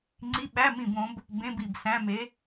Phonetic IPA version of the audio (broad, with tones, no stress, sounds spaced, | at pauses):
ŋ͡ǀ i˧˥˧ ɓ æ˧˥˧ m ĩ˦˨ b õ˧˥ b | b ẽ˧˥˧ b i˦˨ b s æ̃˧˥˧ m e˧˥